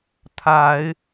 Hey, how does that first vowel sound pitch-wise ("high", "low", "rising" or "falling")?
rising